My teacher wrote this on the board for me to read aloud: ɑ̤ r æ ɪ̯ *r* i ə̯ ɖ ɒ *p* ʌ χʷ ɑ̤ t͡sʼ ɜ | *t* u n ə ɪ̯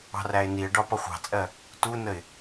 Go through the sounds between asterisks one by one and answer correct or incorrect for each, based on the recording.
incorrect, correct, correct

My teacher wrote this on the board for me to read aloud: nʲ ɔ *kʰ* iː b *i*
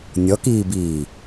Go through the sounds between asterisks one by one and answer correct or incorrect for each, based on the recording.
incorrect, incorrect

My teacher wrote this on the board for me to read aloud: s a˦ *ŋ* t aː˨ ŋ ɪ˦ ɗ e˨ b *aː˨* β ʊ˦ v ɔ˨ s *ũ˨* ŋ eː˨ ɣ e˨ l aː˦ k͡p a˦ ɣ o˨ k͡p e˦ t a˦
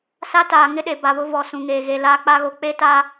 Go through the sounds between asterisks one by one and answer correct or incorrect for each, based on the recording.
incorrect, incorrect, correct

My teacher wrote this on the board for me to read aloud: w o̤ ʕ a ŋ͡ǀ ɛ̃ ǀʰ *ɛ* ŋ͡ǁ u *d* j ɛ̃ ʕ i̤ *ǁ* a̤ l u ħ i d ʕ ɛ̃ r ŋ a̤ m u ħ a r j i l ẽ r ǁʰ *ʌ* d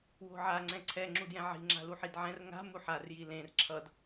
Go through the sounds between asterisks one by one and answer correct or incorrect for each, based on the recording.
correct, correct, incorrect, correct

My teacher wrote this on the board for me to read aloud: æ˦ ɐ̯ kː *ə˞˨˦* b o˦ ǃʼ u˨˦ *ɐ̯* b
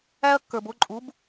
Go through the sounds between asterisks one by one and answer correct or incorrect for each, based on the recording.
incorrect, incorrect

